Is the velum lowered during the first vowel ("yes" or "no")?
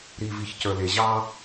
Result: no